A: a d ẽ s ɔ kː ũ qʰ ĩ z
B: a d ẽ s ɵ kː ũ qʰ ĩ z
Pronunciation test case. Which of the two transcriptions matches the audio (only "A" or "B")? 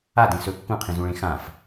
B